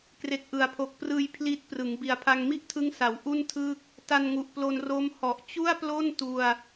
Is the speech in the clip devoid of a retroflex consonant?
yes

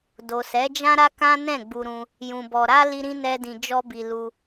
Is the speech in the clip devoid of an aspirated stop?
yes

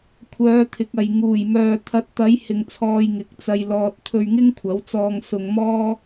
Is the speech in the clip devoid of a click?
yes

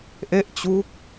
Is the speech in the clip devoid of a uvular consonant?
yes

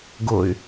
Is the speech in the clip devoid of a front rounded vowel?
no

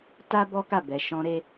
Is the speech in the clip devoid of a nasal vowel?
no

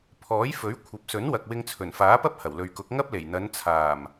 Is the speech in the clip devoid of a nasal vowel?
yes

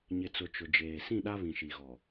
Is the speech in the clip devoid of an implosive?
no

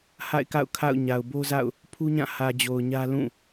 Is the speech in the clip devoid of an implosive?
yes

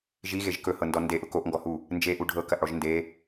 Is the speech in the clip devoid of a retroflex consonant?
no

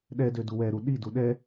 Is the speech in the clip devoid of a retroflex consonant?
yes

